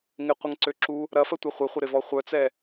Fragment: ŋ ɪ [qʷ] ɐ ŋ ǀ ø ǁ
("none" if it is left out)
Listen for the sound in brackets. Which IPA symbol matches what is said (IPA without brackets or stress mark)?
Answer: qʷ